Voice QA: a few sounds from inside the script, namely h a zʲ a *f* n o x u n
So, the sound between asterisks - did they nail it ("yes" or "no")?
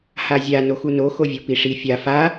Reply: no